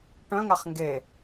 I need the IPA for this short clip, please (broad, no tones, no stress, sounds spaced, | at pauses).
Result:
ʈ œ̃ ŋ a χ ŋ ɡ e